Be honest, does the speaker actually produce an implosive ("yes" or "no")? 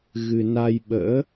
yes